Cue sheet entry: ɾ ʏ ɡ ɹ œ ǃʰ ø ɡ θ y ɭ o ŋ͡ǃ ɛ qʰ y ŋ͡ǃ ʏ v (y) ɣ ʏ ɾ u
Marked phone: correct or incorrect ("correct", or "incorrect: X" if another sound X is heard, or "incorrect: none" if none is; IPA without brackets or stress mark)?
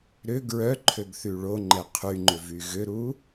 correct